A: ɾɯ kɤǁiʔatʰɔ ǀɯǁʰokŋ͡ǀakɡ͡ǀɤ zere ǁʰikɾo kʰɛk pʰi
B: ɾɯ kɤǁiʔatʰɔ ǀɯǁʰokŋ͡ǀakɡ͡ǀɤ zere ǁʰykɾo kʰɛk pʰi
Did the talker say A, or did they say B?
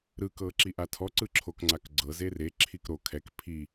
A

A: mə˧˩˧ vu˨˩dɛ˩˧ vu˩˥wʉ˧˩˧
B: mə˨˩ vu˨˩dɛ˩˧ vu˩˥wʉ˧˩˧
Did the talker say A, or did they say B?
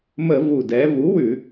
A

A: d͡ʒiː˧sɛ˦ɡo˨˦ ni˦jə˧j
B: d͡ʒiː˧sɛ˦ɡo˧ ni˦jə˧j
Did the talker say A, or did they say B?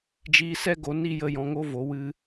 A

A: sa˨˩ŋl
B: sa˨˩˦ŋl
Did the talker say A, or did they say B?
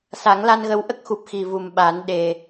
B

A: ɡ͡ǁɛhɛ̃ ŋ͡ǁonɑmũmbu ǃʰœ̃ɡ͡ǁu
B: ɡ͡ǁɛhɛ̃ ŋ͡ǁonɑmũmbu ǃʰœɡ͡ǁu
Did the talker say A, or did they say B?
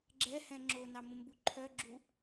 B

